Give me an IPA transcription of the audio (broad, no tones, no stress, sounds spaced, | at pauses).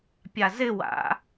pʲ a z ɪ w a̰